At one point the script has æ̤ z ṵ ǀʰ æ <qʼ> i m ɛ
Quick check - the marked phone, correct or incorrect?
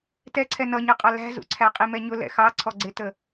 correct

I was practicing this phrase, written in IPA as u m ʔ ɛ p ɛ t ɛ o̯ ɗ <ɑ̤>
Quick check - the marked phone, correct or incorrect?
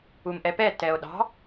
correct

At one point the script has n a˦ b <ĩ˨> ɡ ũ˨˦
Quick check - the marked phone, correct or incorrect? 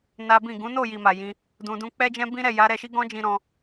incorrect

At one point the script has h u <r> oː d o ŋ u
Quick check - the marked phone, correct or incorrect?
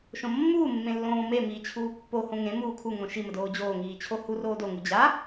correct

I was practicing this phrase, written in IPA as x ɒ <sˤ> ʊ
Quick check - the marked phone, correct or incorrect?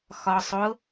correct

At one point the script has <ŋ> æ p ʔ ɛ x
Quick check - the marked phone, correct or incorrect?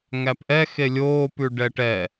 correct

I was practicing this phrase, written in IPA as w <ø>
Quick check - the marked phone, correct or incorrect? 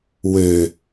correct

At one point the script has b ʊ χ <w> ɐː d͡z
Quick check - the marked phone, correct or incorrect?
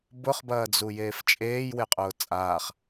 incorrect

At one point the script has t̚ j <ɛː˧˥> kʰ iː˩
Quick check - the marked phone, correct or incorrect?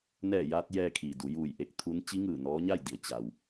incorrect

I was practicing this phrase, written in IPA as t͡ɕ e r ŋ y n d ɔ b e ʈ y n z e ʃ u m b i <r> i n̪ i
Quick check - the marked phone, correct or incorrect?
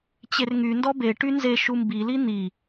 incorrect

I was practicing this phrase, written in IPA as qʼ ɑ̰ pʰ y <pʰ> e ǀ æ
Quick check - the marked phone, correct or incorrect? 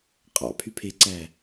correct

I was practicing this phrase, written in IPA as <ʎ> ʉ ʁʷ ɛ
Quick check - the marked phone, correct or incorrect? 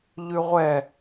correct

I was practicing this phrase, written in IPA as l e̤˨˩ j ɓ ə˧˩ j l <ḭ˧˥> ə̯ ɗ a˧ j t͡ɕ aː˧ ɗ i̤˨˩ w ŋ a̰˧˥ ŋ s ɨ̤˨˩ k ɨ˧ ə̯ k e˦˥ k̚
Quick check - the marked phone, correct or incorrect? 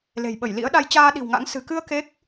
correct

